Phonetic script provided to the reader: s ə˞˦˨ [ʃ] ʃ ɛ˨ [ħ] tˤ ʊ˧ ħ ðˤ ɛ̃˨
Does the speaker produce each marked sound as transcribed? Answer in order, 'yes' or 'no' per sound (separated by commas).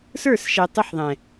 no, no